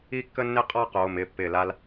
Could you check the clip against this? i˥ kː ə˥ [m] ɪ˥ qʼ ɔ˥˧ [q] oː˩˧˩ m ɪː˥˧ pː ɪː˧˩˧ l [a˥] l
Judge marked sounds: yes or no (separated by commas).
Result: no, yes, yes